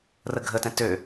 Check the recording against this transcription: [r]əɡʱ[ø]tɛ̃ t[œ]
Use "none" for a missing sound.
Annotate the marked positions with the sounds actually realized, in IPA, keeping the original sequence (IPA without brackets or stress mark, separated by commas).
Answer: r, ə, ø